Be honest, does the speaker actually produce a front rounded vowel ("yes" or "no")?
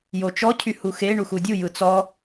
yes